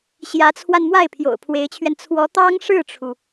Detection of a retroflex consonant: present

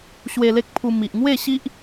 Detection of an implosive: absent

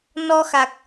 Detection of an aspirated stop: absent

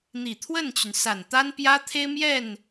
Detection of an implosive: absent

